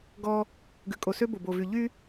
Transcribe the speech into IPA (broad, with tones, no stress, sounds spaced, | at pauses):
ɡ ɔ˦ | ɡ ʉ˨ kʼ o˨ s ø˦ b o˨ b o˨ v y˨ ʎ y˦